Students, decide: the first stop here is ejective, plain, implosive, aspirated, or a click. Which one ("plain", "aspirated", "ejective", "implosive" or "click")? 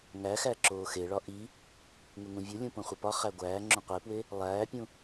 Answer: click